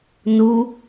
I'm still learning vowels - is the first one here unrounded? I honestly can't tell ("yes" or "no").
no